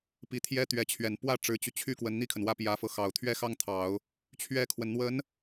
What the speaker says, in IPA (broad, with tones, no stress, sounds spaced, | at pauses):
p i˧˥ t̪ʰ j ɛ˥ t̪ ɥ ɛ˧˥ t͡ɕʰ ɥ ɛ˨˩ n p w ä˥˩ ʈ͡ʂ ɻ̩˧˥ t͡ɕ y˧ t͡ɕʰ y˥ k w ə˧˥ n n̪ i˥˩ kʰ ə˩ n w ä˥˩ p j ä˧˥ f ɤ˧ x ɑ˨˩ ʊ̯ t̪ʰ ɥ ɛ˥ x ɑ˥ ŋ t̪ʰ ɑ˨˩˦ ʊ̯ | t͡ɕʰ ɥ ɛ˥ kʰ w ə˨ n n̪ w ə˧˥ n